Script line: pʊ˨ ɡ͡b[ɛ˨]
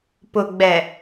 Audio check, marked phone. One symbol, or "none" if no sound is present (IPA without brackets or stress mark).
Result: ɛ˨